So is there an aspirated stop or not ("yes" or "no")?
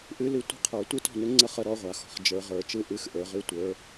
yes